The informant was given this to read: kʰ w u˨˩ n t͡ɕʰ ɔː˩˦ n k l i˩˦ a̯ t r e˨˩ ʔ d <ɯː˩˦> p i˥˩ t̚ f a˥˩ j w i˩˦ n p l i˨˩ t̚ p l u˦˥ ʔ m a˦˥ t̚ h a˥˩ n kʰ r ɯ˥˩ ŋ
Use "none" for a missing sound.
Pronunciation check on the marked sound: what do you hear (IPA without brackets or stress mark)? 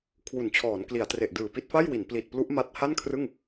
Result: ɯː˨˩